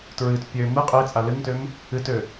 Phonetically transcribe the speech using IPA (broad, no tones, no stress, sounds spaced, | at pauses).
t ɹ ɨ t pʲ ø m ɨ qʼ e t͡sʼ a l ɨ ŋ t ø m | ɨ t ø